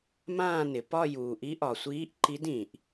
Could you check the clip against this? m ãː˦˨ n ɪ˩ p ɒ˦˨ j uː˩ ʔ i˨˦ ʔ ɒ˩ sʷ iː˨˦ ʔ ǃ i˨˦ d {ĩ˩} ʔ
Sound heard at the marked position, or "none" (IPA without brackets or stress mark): ĩ˩